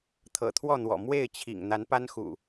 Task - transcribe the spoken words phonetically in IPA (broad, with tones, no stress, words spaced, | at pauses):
t̪ʰɤ̰˨˩t̪ʰwɔ˥˨n̪wɔ̰˨˩ mwe˥˨ɪ̯t͡ɕʰḭ˨˩ŋ n̪a˨˦npa˦nxṵ˨˩